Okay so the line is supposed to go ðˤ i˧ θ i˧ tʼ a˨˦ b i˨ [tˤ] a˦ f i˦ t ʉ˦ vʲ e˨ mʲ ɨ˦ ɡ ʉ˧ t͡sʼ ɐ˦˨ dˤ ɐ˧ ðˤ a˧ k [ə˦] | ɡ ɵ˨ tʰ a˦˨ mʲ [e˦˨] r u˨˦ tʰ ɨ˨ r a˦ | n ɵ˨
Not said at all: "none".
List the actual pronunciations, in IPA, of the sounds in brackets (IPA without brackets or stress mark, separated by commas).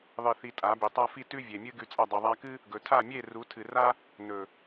tˤ, ɨ˦, e˦˨